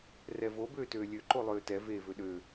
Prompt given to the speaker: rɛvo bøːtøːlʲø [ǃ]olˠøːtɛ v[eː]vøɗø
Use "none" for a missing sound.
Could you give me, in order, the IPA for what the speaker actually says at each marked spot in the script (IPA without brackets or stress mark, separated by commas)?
ǃ, eː